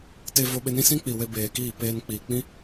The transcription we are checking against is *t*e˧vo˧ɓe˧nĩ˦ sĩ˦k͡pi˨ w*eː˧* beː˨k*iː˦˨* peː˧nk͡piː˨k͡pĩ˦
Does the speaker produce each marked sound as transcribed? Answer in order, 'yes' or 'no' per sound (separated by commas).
yes, no, yes